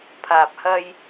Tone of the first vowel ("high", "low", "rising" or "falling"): low